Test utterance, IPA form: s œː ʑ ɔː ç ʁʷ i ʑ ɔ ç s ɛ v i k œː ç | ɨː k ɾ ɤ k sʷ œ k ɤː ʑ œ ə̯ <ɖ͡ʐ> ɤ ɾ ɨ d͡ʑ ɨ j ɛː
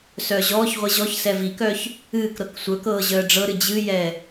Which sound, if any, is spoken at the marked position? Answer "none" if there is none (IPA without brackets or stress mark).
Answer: ɖ͡ʐ